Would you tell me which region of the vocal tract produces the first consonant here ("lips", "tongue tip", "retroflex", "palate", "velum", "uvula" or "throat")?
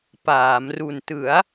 lips